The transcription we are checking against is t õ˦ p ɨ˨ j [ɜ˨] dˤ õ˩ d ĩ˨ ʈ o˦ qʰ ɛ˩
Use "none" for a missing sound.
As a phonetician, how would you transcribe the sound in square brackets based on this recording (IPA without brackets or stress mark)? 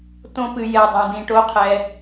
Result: ɛ˨